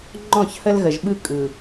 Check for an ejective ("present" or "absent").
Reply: present